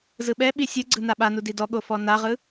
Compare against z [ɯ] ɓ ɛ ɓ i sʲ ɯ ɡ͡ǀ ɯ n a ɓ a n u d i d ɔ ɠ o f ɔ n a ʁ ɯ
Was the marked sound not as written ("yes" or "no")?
no